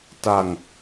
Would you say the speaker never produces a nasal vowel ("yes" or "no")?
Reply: yes